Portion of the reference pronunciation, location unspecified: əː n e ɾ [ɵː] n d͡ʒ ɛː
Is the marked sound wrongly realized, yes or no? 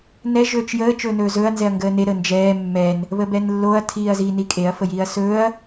yes